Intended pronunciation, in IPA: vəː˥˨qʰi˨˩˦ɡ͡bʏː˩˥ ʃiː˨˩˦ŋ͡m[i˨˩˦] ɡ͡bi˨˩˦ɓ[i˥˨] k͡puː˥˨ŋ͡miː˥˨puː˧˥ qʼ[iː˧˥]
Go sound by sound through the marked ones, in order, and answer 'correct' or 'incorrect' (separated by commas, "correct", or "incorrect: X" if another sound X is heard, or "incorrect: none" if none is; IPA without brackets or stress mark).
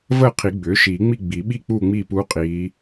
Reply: incorrect: i˥˨, correct, correct